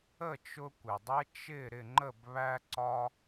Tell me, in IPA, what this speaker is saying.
ə˥˨t͡ʃʊ˦ kʷɪ˩dˤɛ˦ t͡ʃɪ˥˨ ɾɪ˥˨ŋ͡ǃə˥˨b βæ˦ǀɒ˦

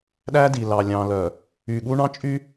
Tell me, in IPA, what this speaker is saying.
ɗæ˦di˨ lɑ˨lʲɑ̃˨lœ˨ | y˨ɠu˦ ɳɑ̃˦t͡ʃʼy˦

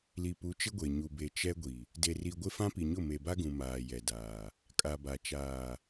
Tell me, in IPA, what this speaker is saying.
li˨pu˨˦ t͡ʃɪ˦ɡʷe˨ ɲu˨be˨ t͡ʃɛ˦ɡʷi˨ | de˨ri˨ɡʷɪ˦ fã˦pi˨ɲʊ˦˨ me˨ba˦ɡũ˨ maː˨jɛ˨daː˨ | kʼa˨ba˨ t͡ʃaː˨

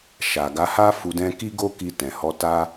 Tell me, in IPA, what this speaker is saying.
ʃa˨ɡa˨˦ha˦ fu˧dɛ̃˦ ki˦ɡo˦ki˧ tɛ̃˨hɔ˧ ta˦

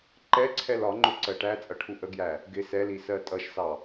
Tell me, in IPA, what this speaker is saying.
ǃɛǀʰɛl ɒŋ͡ǃʊ ǀɜʈæt͡sʼʌ ʈʰuʔəɡjæ | ɡɪ sɛli sɜtʼʌʃsɑ

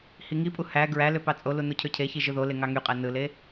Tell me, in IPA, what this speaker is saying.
hiŋipʼu hæ ɡɹæ løpɑt͡sʼolu nucʰøcʰeçi ʒɯðole ŋɑŋyqʼæ nɯle

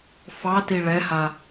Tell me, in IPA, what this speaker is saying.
fɑti ɭɛha

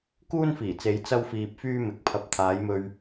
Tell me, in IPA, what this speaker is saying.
kuː˥nfiː˨˩t͡se˨˧j t͡sɐ˥wfiː˧p̚fyː˥ mɪ˨˥k̚pʰɐ˧p̚ t̪ʰaː˨˧jmɵ˧ɥ

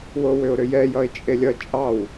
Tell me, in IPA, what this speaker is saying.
wowʏʊ̯ɾʏjɛ jʌɪ̯t͡ʃʼelʲʌ t͡ʃʼɑw

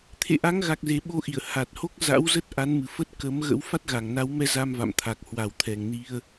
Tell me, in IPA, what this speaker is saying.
t̪ʰḛ˧˨ʔa˨˦ŋɣa˨˩k̚ze˨˩ ɓo˧ʔi˧˩ə̯ ha˨˩t̚ho˦˥k̚ za̰˧˥w zə˦˥t̚ ʔa˨˦nmɨ˨˩fə˦˥t̚ kə˨˦mɣə̰˧˥w fa˦˥t̚ɣa˨˩ŋna˨˦wmɛ˧ za˧mva̰˧˨mt̪ʰa˨˩k̚ hwa˨˩wt̪ʰɛ˨˩ŋni˧ə̯

